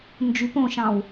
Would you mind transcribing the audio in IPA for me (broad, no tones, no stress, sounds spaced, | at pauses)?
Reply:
n d͡ʒ y p õ ʃ ɑ̃ w